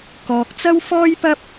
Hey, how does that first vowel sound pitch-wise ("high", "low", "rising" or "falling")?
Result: low